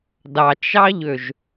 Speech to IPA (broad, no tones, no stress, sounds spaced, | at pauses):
d ɑ t͡ʃ ɑ ʎ ø ʒ